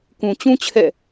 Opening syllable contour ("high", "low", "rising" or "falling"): low